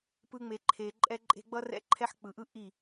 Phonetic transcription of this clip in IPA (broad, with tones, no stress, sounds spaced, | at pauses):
p ɯ˦ ŋ͡m e˧ ǃʰ e˧ ǃʼ ɛ˦ ǃʼ e̤˦ ɡ͡b ʌ˦ r ɛ̰˦ ǃʰ ɛ˦ ħ k͡p ɯ˨ ʔ ɯ˦ ʔ i˦˨